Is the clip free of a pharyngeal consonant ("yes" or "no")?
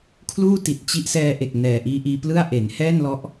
yes